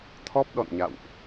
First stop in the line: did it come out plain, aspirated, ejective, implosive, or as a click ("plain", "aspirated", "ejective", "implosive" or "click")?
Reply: aspirated